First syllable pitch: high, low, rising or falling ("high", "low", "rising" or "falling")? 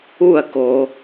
falling